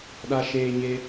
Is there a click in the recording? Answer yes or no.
no